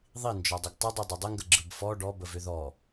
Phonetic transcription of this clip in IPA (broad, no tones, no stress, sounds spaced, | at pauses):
ðˤ i n d͡ʒ ɔ dˤ ə ɡ tˤ ʏ dˤ i dˤ ʏ dˤ ə ŋ ɡ ə ɡ͡ǁ ɯ b f ɔ ɖ ɔ b ə v ʏ ð ɔ